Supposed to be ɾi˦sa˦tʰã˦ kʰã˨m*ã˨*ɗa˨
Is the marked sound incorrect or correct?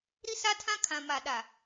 incorrect